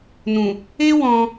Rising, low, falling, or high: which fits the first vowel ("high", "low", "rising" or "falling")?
low